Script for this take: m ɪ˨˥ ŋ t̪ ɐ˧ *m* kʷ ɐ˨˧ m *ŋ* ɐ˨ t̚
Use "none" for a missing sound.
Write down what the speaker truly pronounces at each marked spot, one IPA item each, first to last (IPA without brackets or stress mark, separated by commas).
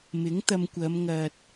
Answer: m, ŋ